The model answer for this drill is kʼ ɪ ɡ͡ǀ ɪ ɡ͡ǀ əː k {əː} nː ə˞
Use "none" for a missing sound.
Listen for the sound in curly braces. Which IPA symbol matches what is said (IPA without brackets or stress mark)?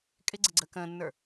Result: ə̃ː